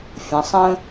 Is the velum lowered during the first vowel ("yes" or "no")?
yes